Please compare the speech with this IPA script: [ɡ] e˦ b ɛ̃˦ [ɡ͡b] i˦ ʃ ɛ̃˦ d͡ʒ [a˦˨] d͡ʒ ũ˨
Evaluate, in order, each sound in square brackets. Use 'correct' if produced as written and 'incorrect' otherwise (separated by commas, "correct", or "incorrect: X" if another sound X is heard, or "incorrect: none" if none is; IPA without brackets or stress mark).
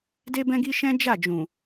incorrect: d, incorrect: ɡ, correct